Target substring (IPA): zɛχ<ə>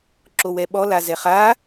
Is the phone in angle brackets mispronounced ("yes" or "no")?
yes